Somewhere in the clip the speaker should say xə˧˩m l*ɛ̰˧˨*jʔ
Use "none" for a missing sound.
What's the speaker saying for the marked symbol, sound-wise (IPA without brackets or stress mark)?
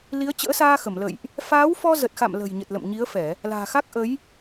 ə̰˧˨